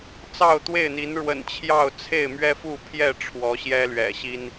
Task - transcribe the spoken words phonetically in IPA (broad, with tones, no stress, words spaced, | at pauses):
t͡sɑ˥˨ʊ̯t̪we˥˨ɪ̯n̪i˨˦n ɻwə̰˨˩nt͡ɕʰjɑ˥˨ʊ̯ t͡sʰe˥˨ɪ̯mɥɛ˦fu˥˨pʰjɛ˥˨ ʈ͡ʂʰwɔ˨˦ɕjɛ˦lɥɛ̰˨˩ɕi˦n